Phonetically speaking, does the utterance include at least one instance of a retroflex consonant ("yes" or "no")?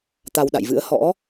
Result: no